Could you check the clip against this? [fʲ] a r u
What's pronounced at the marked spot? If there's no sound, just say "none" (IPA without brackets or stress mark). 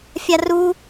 fʲ